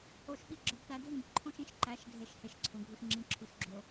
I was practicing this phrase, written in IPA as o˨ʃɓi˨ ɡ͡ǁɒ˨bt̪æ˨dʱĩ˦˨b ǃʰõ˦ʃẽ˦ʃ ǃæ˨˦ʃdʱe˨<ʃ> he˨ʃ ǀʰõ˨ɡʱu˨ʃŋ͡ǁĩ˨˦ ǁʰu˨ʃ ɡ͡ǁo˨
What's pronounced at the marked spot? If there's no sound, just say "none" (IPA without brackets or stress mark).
ʃ